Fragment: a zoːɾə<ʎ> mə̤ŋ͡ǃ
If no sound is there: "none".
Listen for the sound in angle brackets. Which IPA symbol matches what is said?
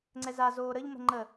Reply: ʎ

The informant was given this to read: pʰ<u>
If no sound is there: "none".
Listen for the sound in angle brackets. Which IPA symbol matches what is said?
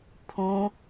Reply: ũ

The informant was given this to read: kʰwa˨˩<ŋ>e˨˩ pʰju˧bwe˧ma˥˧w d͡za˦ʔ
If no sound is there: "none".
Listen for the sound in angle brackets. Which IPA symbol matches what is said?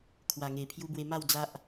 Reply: ŋ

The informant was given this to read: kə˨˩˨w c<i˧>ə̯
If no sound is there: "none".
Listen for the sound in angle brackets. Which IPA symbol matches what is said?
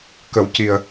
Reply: i˨˩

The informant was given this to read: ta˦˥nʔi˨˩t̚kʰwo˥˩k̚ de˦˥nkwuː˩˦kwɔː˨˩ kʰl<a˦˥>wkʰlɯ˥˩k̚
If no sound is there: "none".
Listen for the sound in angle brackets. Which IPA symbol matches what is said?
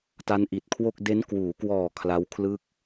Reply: a˦˥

